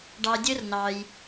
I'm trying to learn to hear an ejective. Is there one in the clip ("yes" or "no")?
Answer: no